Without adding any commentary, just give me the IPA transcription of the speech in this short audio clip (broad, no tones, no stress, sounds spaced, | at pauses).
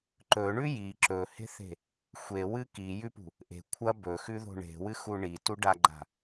ǃ ɵ ɳ ʉ j i ǁ ɵ h e̤ θ e̤ | xʷ e w ɨ k i j ʉ p ṳ | ʔ e̤ kʷʰ ɐ b ɵ x ʉ ð o̤ ɳ e̤ w ɨ x u ɳ i t u ɖ a ɡ͡ǃ a̤